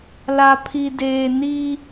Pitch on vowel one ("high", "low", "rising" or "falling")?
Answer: low